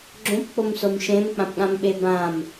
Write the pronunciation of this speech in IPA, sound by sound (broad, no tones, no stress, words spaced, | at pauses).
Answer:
ɡ͡ǁõpk͡pomsom ʃẽmk͡pãpɠãmɓe bãm